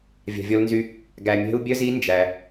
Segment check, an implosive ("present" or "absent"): absent